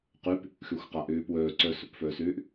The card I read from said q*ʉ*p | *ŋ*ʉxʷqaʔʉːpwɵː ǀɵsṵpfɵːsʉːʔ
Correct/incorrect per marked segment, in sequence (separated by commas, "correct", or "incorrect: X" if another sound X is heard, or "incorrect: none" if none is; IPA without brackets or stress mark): correct, incorrect: x